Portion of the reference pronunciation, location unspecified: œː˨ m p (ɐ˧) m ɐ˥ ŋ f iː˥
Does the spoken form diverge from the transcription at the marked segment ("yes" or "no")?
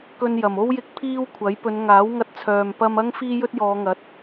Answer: no